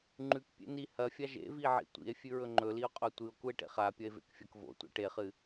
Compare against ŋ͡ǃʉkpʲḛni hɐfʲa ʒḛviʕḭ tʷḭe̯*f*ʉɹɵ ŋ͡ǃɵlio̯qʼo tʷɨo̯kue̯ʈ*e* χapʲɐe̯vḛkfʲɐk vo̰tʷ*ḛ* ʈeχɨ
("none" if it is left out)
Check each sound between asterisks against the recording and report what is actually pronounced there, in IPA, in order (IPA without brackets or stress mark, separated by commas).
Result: fʲ, ḛ, ḛ